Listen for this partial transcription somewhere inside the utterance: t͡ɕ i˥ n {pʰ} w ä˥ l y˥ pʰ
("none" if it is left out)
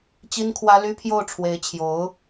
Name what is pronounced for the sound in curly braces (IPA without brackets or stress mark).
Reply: kʰ